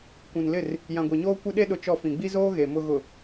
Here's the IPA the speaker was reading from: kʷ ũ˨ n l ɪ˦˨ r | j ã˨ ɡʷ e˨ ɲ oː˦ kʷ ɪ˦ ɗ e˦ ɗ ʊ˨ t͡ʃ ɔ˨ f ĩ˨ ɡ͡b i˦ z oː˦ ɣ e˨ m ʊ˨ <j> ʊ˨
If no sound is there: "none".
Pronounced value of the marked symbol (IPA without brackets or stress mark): ɣ